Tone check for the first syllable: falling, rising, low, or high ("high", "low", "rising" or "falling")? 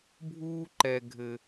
high